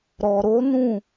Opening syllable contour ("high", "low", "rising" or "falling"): low